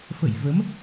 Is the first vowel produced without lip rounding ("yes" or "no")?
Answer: yes